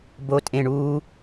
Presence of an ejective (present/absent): present